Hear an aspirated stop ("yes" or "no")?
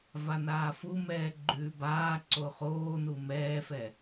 no